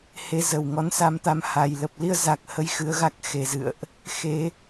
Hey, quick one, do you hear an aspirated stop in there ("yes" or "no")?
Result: no